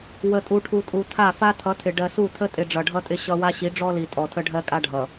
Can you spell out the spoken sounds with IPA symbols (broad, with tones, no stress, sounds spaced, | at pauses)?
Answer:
w ə˨ tʼ u˨ ʈʰ u˨ tʼ u˨ tʰ a˦˨ f a˦ tʰ ʌ˨˦ tʰ ɪ˨ ɖ ɜ˨ s u˦˨ tʰ ə˦ tʼ ɪ˨ ɖ͡ʐ ʌ˨ ɖʱ ʌ˦ tʼ ɪ˦ ɕ ʌ˦ w a˦ ɕ i˨˦ ɖ͡ʐ ɔ˦ l i˨ tʼ ɔ˨ tʰ ə˦ ɖʱ ɜ˦ kʼ a˦ ɖʱ ʌ˨